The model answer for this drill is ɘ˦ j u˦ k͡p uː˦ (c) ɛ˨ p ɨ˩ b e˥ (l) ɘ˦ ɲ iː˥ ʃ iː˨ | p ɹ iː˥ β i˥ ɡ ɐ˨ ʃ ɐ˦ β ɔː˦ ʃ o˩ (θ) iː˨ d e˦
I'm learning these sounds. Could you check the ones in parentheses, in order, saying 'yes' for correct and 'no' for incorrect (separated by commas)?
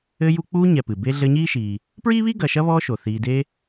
no, no, yes